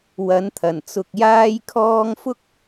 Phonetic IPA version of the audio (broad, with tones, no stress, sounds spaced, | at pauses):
w ɐ˨˥ n t̪ʰ ɐ˨˩ n t͡s ʊ˧ k̚ j aː˥ j kʰ ɔː˥ ŋ f ʊ˥ k̚